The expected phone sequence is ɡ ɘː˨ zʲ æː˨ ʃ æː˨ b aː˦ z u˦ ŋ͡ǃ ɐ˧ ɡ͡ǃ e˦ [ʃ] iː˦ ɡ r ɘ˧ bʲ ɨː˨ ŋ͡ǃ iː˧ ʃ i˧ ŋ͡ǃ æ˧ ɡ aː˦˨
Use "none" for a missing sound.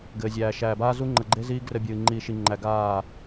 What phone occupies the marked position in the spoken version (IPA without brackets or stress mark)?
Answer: z